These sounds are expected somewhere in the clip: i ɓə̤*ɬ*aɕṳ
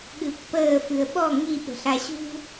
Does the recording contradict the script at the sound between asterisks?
no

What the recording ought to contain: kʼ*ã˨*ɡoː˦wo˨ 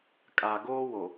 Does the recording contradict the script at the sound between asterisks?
yes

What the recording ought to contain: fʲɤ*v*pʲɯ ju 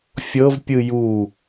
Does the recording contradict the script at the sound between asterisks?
no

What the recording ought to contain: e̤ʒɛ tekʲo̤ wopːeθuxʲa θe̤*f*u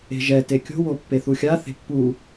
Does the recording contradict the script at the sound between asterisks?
yes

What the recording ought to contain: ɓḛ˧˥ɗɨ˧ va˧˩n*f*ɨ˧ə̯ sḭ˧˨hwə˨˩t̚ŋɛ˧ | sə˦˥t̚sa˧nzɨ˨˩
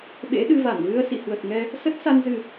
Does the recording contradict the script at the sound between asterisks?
yes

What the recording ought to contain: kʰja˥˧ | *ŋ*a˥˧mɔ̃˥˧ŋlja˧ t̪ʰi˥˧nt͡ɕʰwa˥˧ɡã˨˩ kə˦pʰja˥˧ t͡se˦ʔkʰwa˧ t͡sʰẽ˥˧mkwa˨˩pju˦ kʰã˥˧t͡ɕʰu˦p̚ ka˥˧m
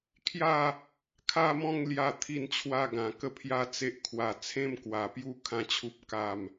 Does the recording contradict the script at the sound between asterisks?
yes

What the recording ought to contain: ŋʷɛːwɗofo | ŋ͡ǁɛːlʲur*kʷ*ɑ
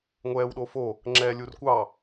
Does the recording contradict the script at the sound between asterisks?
no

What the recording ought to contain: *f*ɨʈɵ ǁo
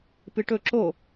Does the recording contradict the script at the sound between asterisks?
yes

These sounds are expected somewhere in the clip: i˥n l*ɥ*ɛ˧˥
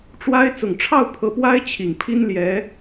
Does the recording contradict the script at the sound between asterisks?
yes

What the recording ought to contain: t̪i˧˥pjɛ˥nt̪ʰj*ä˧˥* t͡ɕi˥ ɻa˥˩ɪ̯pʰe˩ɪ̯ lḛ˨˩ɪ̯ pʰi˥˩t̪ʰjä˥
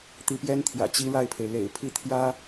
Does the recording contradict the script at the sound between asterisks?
yes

